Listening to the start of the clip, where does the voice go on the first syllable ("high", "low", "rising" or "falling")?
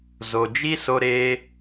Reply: low